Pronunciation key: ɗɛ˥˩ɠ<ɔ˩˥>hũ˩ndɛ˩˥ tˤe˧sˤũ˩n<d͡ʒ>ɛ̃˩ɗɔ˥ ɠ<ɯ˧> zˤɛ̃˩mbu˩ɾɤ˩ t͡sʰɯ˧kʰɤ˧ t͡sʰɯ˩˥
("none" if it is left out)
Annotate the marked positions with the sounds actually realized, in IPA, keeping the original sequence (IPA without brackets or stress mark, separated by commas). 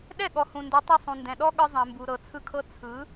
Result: ɔ˩, d, ɯ˧